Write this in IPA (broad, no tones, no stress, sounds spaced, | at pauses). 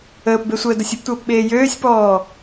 əː p b e sʷ əː d o sʲ ə p tʷ əː p ɓ eː j øː sʲ p ɔː